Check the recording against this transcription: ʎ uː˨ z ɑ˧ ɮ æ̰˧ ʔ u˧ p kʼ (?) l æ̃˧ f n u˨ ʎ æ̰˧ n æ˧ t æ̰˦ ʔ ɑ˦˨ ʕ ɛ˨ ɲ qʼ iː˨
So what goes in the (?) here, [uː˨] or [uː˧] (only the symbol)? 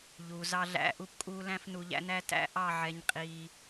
uː˧